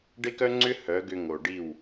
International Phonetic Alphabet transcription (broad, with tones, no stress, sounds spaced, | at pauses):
ɖ e˦ k œ˦ ŋ͡ǀ ʏ˦ h œ˨˦ ɡ ʏ˧ ŋ o˨ ɖ i˦˨ w